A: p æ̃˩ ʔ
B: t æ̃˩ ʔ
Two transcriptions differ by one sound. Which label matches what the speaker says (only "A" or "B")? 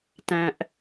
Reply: B